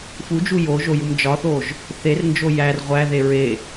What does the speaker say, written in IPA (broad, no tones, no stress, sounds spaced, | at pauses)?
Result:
f u d͡ʒ u j o ʒ o j u m d͡ʒ ɒ θ o ʒ | θ e r n d͡ʒ o j æ r ʁʷ æ ð e ɹ e